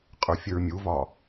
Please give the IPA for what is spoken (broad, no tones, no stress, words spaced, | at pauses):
qʼə˞fʲəɹmʲuvɒ